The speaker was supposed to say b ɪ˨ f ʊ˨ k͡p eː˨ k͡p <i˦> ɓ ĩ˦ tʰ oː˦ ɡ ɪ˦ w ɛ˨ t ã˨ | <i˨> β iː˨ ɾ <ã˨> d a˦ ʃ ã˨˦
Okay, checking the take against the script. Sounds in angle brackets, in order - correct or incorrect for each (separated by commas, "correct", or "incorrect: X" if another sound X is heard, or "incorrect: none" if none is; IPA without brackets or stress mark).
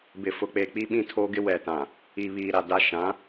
correct, correct, incorrect: a˨